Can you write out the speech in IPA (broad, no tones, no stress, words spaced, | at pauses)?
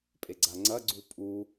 pʼeɡ͡ǀaŋ͡ǀɐ ɡ͡ǀupʼu